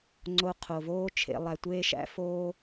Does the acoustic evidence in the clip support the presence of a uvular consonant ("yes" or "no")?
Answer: yes